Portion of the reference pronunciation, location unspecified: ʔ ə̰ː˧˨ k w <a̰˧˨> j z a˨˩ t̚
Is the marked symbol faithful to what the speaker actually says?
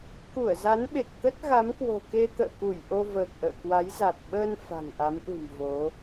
no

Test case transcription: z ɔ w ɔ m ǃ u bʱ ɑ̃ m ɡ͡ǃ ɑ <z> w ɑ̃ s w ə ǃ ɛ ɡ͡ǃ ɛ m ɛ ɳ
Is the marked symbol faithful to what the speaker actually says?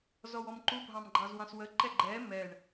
yes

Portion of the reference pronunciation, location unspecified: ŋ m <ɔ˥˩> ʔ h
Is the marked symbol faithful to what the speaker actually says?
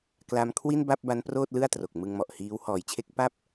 no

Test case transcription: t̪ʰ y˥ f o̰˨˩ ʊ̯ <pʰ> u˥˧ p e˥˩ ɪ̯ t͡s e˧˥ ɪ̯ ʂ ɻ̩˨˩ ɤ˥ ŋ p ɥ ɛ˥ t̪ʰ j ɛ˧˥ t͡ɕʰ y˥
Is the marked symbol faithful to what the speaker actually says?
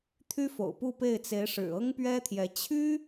no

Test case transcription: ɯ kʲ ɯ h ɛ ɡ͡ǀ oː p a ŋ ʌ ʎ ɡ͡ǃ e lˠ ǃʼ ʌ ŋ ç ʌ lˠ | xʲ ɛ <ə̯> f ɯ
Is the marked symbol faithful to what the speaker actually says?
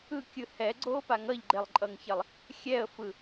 yes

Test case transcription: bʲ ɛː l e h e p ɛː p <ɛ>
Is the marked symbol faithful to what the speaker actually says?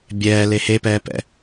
no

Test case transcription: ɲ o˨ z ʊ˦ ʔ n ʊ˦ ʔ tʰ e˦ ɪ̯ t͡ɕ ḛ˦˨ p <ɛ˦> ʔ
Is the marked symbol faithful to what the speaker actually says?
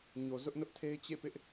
no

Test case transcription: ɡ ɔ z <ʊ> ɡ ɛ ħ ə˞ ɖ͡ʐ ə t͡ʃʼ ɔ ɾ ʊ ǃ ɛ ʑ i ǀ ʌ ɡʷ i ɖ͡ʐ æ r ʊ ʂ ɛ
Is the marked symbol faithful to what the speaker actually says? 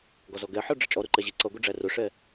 no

